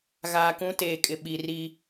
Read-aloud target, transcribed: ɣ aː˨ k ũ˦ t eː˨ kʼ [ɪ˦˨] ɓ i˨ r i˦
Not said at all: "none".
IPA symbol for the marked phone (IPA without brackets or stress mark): ɪ˨